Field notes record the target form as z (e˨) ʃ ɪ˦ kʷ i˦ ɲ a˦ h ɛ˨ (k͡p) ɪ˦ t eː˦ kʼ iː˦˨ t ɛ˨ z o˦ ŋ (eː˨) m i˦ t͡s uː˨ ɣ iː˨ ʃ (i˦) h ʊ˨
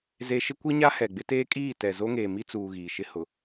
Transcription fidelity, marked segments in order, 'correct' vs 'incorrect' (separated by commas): correct, incorrect, correct, incorrect